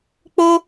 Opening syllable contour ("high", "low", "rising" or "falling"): high